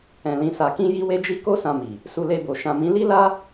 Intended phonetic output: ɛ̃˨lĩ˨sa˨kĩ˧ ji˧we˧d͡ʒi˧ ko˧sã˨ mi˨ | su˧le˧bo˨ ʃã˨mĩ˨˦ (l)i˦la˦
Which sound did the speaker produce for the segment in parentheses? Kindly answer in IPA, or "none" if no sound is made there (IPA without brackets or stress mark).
l